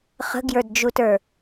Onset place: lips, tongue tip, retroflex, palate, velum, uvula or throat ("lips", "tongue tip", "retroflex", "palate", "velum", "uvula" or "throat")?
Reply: uvula